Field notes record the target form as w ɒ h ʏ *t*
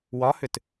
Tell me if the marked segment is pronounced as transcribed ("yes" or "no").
yes